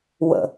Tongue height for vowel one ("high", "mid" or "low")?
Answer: mid